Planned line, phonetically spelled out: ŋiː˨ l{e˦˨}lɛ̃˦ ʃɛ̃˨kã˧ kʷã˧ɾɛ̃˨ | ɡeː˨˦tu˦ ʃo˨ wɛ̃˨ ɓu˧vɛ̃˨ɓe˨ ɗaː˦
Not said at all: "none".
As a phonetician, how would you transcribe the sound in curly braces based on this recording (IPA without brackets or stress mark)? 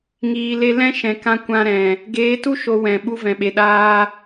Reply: e˧